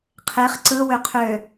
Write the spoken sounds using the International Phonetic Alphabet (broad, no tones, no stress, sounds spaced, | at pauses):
qʰ e χ ǀ ɯ w ø qʰ ø